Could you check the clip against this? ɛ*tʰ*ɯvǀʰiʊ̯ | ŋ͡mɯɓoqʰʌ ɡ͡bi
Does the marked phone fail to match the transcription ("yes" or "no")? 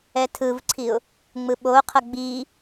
no